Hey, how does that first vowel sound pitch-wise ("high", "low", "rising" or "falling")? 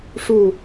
falling